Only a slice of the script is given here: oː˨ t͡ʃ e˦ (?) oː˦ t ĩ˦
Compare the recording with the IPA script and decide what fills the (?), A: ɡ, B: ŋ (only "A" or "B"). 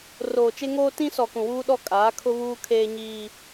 B